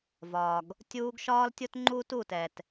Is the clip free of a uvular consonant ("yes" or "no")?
yes